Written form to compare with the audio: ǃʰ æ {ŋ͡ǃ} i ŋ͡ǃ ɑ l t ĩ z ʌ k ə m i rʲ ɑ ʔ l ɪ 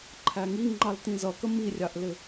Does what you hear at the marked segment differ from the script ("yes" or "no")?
yes